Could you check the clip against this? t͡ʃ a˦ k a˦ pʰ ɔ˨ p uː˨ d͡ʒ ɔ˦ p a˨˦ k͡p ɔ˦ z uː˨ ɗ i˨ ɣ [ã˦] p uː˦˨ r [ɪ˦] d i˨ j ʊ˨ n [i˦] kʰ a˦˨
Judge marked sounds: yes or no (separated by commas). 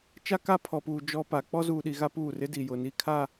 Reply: no, yes, no